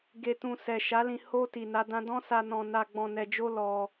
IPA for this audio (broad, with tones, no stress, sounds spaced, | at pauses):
ɡ e˨ t ũ˨ s ɛ˨ ʃ a˨˦ l ĩ˧ h o˧ t i˨ n a˨˦ d ã˦ d ɔ̃˦ s a˧ n ɔ̃˧ n a˧ ɡ͡b ɔ̃˧ n ɛ˧ d͡ʒ o˦ l ɔ˧